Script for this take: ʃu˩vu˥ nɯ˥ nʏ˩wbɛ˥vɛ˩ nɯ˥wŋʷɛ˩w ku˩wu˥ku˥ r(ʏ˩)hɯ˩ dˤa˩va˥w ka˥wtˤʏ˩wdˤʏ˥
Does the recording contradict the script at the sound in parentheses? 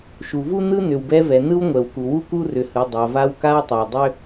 no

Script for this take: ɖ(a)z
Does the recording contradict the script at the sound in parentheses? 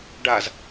no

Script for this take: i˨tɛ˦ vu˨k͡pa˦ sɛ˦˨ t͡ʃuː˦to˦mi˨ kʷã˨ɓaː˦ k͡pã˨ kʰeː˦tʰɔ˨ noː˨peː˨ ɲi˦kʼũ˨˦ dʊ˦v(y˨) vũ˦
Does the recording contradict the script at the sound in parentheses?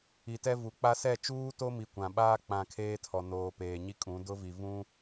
yes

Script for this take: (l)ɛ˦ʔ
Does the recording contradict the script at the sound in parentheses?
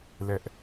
no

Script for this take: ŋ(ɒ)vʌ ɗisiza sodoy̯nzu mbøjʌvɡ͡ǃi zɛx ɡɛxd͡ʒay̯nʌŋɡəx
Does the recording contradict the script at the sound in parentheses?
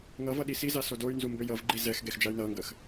yes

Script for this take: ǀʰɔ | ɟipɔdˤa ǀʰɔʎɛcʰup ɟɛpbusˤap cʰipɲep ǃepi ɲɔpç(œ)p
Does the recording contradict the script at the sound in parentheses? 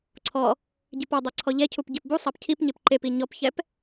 yes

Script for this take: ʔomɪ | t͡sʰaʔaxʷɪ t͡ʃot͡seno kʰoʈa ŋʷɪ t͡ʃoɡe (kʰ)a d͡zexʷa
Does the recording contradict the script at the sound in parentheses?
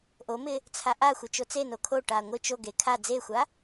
no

